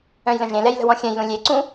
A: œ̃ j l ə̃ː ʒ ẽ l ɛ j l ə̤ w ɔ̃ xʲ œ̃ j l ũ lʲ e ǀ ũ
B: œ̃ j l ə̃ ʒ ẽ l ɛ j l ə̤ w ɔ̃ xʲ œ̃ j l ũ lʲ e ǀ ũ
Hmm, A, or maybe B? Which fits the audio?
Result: B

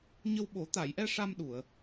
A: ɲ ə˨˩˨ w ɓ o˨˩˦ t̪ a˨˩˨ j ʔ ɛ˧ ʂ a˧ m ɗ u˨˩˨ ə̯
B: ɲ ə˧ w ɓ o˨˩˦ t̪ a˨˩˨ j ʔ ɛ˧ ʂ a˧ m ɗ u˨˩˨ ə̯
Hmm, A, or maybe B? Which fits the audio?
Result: B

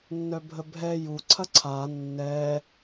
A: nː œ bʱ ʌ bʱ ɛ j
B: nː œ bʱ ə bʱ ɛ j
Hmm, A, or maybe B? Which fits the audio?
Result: B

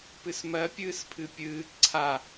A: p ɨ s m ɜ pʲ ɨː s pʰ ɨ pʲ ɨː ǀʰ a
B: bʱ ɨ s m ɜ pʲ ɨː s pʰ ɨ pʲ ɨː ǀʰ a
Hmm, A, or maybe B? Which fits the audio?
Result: A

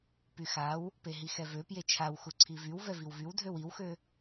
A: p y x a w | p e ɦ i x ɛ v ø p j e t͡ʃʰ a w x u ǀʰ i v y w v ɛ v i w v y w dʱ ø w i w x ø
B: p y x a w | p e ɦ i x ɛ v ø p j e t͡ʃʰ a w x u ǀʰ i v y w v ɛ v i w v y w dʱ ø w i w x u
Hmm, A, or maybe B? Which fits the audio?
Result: A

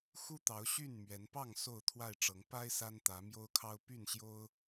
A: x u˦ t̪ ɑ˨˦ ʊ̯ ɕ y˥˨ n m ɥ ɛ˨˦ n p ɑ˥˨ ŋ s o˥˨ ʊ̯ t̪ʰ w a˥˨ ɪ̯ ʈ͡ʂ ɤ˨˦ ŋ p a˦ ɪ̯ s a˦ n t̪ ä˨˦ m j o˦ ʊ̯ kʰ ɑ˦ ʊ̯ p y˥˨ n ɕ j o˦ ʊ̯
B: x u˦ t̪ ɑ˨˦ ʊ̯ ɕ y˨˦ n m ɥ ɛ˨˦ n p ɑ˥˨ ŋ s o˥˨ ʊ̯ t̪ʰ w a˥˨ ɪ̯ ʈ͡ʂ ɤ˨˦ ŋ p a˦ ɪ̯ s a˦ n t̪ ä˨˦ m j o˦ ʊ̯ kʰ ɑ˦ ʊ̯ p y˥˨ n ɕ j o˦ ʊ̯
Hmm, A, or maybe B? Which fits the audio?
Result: A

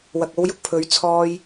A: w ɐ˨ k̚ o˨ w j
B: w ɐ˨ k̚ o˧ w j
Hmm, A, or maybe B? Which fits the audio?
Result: B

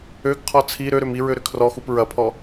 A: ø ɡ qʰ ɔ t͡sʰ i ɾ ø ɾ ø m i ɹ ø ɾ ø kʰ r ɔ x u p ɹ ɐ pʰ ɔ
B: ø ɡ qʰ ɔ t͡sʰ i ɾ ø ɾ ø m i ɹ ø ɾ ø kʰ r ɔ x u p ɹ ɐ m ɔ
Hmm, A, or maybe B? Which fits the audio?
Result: A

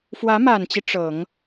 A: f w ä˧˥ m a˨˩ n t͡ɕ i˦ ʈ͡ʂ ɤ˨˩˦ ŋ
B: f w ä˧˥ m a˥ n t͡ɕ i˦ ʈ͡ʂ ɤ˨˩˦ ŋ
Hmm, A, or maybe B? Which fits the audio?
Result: A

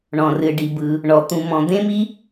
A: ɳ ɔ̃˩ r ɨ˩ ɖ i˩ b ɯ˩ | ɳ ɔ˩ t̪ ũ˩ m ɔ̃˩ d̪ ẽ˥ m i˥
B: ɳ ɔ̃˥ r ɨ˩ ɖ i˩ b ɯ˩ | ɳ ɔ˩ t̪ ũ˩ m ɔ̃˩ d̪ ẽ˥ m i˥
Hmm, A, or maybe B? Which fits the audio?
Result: A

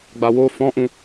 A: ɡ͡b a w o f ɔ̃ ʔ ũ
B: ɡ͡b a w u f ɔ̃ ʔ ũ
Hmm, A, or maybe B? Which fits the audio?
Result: A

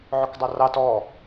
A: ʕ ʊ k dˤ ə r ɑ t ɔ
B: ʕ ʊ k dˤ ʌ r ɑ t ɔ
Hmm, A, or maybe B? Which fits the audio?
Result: B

